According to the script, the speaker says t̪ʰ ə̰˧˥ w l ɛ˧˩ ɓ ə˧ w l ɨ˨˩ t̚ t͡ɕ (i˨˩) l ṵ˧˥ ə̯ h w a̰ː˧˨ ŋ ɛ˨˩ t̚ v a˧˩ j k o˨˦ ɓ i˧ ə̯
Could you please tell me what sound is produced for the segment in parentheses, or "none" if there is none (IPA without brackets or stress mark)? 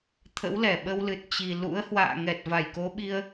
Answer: i˨˩